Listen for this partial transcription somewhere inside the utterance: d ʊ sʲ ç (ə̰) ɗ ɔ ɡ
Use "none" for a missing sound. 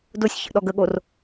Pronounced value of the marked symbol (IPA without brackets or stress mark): ə̰